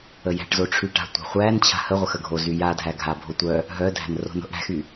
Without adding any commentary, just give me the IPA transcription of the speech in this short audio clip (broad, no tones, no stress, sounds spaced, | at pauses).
ə j æ̤ ʈ z o ʈ͡ʂʰ y ʈ a̤ tʷ a̤ χʷ æ n t͡ɕʰ a̤ h ə ʁʷ ə x ə ɡʱ o z y j a dʱ æ ɡʱ a bʱ o tʷ œ | ɦ œ dʱ æ̤ n r o̤ n o̤ ʔ ɽ æ̤ x y